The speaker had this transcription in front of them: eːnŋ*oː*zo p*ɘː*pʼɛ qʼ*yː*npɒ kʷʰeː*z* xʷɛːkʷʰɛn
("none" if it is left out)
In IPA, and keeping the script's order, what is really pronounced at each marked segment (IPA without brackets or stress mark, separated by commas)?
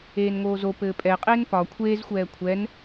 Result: oː, ɘː, eː, z